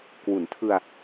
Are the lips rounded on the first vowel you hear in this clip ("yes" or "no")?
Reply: yes